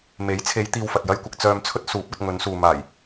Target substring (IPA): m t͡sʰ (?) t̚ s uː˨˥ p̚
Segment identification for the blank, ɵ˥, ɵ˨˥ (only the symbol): ɵ˥